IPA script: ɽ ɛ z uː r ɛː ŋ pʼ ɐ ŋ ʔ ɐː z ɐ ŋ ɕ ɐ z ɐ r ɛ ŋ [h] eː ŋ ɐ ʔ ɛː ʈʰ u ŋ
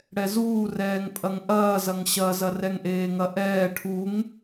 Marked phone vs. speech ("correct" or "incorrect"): incorrect